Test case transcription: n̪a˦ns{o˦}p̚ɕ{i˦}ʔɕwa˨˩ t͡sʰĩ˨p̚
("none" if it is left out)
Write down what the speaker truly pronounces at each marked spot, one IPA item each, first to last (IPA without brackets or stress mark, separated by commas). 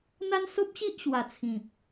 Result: o˦, i˦